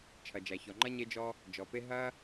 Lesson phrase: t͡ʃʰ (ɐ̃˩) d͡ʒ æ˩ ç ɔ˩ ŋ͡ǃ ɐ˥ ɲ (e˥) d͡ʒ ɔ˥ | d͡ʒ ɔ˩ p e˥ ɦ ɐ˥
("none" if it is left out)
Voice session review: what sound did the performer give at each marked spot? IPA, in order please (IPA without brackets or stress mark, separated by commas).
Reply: ɐ˩, e˥